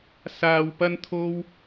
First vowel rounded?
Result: no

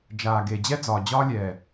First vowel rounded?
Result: no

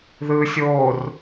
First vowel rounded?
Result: no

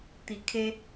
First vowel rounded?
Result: no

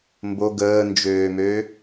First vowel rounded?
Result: yes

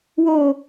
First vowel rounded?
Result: yes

